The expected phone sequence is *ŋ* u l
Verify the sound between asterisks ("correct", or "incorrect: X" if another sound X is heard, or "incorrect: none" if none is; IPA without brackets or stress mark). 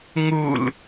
correct